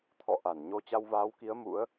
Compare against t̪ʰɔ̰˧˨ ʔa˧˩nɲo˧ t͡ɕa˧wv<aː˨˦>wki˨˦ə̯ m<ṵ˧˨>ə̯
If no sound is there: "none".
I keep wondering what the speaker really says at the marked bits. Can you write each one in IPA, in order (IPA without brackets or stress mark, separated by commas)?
aː˨˦, ṵ˧˥